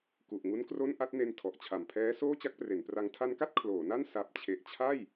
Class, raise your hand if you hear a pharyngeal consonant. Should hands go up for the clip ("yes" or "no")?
no